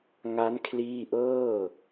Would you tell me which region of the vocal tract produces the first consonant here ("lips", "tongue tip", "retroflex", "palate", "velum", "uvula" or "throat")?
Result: velum